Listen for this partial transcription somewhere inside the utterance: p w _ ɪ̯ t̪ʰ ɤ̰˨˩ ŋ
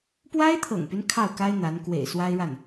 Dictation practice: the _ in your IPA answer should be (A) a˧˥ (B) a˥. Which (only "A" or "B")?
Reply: B